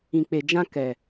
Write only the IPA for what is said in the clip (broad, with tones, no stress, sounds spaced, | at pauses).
ĩ˨ k͡p e˨ d͡ʒ ã˧ k ɛ˨